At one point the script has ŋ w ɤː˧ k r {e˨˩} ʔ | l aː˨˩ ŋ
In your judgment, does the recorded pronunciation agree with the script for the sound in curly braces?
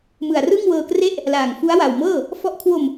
no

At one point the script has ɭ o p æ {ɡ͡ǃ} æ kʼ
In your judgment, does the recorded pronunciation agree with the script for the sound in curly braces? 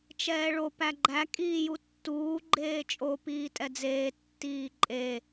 yes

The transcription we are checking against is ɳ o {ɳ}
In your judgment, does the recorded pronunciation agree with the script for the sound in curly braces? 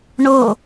no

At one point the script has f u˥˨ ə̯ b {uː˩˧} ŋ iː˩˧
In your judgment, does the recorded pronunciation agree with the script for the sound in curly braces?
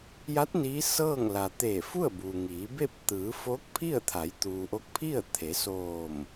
no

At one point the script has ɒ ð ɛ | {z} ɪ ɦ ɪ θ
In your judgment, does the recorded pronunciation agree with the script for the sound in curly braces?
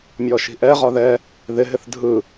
no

